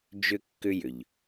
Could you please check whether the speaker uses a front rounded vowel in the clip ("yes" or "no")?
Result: yes